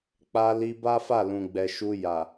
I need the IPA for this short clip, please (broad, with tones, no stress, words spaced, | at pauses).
k͡pa˧li˧ ba˦fa˦˨ lũ˨ɡ͡bɛ˨ʃu˧ja˨